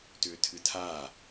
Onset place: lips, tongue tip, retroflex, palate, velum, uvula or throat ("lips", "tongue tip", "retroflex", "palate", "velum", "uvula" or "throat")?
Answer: tongue tip